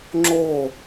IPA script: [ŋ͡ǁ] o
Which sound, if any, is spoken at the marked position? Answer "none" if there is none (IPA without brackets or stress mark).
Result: ŋ͡ǁ